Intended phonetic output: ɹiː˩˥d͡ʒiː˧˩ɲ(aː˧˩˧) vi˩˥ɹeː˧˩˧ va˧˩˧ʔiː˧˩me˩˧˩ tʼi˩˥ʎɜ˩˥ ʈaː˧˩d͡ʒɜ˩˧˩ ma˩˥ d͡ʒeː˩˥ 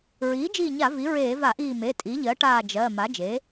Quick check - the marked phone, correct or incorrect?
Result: incorrect